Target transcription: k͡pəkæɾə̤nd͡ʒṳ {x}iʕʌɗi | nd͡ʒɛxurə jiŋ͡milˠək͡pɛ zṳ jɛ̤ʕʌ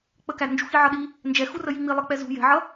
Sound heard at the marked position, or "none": x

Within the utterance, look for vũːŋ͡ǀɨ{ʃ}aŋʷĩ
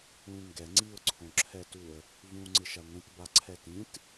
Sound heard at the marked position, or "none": ʃ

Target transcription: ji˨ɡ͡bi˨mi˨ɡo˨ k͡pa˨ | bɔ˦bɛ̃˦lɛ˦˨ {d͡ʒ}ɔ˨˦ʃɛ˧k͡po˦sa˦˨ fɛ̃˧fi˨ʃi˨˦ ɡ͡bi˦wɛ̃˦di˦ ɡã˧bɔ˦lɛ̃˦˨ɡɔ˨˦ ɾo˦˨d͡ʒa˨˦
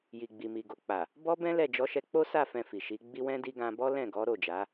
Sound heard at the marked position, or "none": d͡ʒ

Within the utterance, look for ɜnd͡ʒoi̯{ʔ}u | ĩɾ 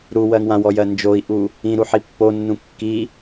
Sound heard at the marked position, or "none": ʔ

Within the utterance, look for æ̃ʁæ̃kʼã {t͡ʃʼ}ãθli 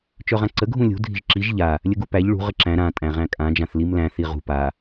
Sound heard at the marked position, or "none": d͡ʒ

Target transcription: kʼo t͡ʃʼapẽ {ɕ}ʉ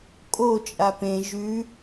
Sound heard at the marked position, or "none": ʒ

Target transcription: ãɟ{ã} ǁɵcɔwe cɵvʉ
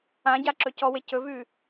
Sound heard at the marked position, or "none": a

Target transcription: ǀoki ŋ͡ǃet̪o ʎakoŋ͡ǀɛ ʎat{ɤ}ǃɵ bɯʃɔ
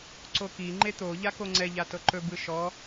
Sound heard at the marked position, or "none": ɤ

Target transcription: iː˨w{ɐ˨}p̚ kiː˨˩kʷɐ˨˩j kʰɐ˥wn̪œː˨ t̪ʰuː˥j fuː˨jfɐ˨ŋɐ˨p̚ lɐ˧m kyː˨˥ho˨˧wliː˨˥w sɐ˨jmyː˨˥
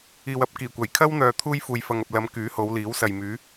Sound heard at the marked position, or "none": ɐ˨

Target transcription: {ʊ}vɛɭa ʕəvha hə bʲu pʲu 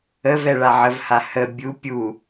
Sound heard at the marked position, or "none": ə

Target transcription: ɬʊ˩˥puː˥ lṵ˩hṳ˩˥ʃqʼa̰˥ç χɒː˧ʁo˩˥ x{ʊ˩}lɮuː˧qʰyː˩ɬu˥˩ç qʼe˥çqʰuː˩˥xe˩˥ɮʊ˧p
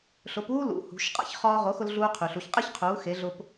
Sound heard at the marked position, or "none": ʊ˧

